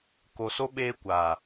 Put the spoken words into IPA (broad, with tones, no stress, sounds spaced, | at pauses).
k o˨ s o˦ ɓ eː˦ kʷ a˨